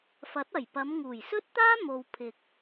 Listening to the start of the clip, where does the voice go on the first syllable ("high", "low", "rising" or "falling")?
rising